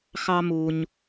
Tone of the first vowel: high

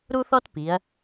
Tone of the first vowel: high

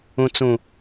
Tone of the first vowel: low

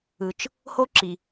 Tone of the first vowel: low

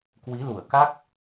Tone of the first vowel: rising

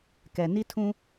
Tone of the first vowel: low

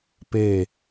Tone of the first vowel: falling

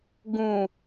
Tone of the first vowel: low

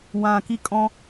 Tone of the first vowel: low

